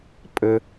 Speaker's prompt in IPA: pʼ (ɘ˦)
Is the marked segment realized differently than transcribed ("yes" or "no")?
no